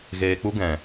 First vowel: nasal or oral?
oral